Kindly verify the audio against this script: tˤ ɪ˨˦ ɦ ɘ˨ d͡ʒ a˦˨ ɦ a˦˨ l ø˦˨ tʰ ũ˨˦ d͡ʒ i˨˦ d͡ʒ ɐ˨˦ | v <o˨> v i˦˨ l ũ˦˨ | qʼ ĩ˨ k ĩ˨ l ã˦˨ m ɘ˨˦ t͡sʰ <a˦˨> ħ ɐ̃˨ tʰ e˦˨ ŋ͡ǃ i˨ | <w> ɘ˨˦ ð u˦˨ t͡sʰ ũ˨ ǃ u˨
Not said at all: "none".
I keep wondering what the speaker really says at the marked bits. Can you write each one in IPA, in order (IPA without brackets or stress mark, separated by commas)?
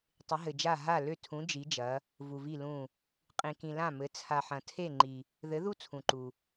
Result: u˨, a˨, ð